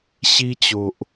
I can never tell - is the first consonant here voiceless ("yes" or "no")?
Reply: yes